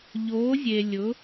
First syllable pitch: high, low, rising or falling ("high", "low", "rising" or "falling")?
rising